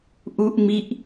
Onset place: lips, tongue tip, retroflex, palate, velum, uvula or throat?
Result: throat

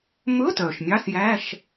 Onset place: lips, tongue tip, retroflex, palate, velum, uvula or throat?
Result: lips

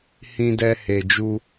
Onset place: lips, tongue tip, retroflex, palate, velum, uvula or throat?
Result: throat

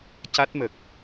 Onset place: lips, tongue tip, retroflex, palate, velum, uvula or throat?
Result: palate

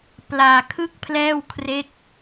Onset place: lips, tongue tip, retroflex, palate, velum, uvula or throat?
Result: lips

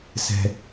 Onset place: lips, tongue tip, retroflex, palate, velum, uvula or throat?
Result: tongue tip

